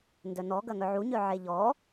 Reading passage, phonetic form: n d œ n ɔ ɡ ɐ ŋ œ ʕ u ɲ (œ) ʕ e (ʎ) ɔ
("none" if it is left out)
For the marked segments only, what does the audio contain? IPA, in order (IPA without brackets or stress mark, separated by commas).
œ, ʎ